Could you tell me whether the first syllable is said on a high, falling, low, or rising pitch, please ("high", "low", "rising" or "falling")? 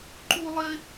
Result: high